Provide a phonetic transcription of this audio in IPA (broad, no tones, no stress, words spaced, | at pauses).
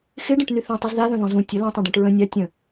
xɪɖə̃ʈny θũtˤuz ðaðœ̃ðɔ̃ zũ tʲə lãtˤœ̃ɖɔ̃ʈ ɹə̃ nʲa tʲə̃